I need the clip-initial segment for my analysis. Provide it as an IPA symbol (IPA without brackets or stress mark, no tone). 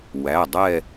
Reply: w